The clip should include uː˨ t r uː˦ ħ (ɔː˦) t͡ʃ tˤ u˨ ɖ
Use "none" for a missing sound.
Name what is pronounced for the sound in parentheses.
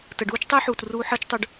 əː˦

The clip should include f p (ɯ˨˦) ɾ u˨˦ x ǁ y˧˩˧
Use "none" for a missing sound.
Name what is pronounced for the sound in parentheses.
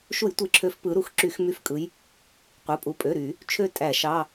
ɯ˨˦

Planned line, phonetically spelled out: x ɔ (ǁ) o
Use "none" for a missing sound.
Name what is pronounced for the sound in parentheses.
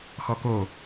k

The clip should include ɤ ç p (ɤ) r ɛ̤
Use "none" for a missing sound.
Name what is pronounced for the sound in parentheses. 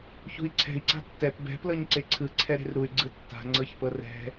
ɤ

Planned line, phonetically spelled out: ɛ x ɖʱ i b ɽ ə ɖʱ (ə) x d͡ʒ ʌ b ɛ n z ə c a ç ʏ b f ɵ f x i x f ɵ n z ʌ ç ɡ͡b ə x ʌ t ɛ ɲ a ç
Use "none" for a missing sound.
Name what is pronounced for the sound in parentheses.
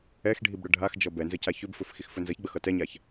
a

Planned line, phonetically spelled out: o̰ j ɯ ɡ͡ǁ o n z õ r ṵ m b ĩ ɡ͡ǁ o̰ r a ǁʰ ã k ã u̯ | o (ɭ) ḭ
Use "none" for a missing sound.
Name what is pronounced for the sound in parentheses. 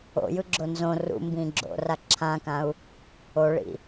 ɭ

